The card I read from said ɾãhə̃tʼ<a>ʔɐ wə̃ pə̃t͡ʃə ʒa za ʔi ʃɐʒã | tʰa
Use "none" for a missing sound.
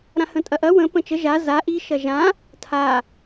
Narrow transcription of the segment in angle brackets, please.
ɐ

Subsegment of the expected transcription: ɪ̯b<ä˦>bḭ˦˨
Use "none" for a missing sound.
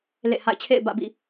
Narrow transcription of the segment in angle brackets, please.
ä̰˦˨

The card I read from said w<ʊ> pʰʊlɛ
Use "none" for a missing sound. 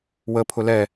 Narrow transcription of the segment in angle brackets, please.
ə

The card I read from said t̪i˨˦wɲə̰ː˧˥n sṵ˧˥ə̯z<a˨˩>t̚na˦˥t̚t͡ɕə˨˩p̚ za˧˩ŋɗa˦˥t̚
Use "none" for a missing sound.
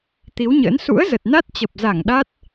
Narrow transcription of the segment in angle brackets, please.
ə˨˩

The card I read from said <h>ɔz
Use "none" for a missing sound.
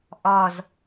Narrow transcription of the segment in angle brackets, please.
ʔ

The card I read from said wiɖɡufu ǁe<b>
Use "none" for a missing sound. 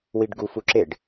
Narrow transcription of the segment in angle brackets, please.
ɖ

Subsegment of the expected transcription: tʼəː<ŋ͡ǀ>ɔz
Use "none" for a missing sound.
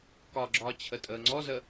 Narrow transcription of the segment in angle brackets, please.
ŋ͡ǀ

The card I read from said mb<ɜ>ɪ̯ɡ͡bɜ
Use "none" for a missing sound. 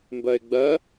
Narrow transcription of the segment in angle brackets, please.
ɜ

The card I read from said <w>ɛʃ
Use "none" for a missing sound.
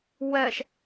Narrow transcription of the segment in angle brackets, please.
w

